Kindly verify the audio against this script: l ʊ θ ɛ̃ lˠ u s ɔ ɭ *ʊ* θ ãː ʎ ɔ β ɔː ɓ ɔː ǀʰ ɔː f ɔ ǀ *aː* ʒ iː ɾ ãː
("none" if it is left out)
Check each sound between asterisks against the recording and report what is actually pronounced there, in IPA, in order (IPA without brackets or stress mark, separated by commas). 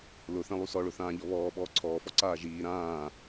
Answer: ʊ, aː